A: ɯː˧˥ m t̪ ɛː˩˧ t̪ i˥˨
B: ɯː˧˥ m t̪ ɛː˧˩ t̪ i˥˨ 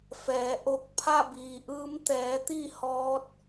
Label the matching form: A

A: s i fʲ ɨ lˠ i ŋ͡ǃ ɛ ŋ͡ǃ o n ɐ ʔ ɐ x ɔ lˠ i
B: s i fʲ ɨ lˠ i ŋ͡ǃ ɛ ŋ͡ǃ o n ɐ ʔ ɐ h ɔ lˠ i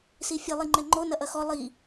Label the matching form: A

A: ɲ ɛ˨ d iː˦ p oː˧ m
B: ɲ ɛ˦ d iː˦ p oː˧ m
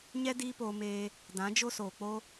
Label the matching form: B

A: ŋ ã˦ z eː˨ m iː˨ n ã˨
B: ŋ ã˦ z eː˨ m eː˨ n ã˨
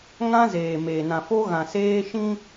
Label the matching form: B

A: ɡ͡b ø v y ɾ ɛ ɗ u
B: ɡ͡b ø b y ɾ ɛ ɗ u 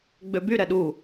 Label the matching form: B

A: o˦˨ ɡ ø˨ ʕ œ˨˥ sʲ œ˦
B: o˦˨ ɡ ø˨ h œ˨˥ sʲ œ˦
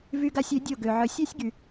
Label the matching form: A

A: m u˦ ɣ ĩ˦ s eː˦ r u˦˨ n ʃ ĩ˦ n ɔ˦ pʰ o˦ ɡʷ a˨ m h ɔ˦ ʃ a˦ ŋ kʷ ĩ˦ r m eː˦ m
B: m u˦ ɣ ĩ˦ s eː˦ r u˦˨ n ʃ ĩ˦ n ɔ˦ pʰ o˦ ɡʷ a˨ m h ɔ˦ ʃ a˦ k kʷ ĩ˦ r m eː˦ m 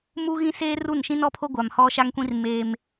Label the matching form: A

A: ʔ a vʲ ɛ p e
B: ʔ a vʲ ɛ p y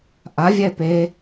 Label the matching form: A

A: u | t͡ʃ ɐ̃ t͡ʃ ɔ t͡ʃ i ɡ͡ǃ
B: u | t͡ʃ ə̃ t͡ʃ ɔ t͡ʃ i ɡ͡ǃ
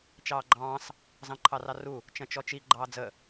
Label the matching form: A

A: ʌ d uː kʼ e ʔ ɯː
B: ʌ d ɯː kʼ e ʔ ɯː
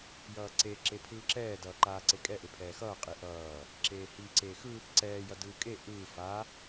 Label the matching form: B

